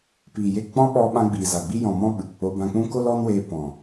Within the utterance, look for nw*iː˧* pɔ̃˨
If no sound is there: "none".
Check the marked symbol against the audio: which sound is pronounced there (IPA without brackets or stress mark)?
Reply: eː˧